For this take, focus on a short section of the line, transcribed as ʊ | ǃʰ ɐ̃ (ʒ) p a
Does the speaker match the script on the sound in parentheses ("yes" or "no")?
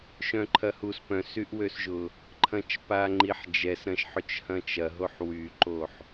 no